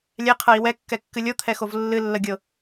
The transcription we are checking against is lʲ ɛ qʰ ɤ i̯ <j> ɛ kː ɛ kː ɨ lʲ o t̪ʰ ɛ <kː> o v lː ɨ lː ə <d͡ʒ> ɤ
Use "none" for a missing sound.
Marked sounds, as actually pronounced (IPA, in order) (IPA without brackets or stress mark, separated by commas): w, x, ɡʲ